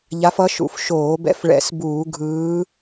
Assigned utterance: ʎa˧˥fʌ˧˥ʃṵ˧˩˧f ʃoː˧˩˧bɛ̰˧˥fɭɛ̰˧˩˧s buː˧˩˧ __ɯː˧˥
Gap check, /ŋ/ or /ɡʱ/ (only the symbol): ɡʱ